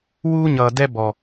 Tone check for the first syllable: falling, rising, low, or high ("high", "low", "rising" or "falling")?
high